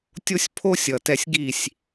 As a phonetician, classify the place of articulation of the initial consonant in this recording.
alveolar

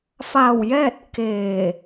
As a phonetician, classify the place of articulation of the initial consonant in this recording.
labial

